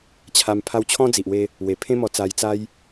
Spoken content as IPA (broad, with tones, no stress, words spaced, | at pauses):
t͡ɕʰa˧m pʰa˧wt͡ɕʰɔ̃˦d͡zi˨ʔwe˧ | we˨˩pʰẽ˦mɔ˧t͡sa˧j t͡sa˦j